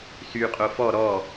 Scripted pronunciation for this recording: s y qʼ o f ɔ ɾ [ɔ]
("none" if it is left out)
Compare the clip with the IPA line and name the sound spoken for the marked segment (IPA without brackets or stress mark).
ɔ